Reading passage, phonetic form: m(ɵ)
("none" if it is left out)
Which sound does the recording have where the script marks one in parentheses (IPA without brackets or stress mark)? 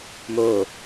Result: o